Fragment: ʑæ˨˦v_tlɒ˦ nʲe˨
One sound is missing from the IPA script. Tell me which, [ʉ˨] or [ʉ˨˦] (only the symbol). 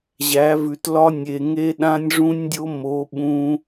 ʉ˨